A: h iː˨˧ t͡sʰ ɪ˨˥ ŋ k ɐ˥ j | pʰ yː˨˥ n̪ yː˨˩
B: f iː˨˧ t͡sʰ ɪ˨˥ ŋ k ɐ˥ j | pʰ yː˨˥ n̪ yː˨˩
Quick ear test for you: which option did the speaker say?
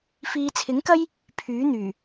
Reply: B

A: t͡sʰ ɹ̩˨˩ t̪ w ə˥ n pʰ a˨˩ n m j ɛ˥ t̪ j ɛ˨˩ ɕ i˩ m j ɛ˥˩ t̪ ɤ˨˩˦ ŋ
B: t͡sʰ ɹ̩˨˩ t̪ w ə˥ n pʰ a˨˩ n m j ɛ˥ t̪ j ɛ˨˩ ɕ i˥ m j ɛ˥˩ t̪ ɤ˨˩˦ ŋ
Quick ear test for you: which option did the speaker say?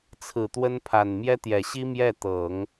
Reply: B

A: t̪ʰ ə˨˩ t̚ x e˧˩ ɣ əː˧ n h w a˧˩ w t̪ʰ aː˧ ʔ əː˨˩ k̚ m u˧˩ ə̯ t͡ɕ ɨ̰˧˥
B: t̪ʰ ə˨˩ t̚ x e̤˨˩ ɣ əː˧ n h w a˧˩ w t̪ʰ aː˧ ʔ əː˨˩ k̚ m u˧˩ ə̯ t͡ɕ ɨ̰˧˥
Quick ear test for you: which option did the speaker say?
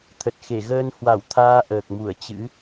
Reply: A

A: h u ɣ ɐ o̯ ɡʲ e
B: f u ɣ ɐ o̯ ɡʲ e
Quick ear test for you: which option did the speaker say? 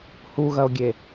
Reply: A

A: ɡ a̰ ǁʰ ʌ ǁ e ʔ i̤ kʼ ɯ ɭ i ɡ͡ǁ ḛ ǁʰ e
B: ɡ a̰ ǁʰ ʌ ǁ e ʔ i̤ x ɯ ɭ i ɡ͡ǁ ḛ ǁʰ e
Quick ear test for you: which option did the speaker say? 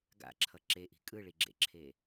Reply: A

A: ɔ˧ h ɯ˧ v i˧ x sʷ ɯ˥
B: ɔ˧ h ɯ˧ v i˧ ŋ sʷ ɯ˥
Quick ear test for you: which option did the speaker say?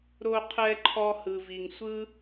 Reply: B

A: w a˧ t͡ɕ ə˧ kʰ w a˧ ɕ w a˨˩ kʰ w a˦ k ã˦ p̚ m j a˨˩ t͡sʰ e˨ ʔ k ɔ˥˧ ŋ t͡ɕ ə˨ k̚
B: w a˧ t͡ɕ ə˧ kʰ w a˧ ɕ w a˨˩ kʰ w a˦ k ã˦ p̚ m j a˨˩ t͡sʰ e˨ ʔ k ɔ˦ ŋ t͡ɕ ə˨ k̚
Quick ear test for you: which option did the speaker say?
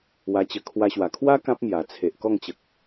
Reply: A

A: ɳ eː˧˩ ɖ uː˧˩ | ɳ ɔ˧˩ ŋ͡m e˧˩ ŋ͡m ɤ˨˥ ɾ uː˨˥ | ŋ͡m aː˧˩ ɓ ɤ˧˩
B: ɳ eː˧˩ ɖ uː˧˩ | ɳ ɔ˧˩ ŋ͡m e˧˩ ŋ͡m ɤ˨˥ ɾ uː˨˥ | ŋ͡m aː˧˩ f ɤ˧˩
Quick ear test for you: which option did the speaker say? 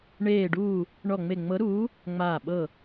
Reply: A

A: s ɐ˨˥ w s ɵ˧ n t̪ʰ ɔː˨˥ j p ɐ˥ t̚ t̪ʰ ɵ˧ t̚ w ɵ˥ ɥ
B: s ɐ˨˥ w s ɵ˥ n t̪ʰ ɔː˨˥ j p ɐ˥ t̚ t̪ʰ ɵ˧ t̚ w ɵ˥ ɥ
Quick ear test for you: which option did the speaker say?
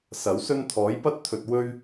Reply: B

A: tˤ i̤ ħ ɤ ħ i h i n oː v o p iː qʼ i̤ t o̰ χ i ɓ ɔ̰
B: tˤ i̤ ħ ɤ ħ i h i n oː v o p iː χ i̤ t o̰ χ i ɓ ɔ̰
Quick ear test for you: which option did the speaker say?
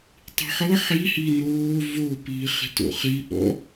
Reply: B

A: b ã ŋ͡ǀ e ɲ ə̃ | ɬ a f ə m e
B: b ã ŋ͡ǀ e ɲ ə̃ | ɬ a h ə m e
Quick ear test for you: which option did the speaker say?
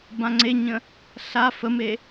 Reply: A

